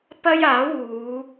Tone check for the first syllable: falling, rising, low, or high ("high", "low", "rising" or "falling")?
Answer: high